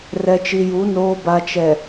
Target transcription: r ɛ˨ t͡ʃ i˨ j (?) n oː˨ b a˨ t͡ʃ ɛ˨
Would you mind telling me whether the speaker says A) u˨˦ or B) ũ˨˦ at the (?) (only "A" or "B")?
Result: A